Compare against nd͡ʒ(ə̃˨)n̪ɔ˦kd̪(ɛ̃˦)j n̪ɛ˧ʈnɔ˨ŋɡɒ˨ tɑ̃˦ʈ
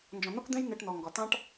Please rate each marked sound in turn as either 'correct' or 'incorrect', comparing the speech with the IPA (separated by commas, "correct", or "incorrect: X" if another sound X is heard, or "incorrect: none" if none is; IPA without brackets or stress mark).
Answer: incorrect: ɔ̃˨, correct